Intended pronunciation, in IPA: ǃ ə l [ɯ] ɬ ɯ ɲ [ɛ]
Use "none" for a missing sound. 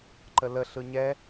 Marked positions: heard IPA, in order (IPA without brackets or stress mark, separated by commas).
ə, ɛ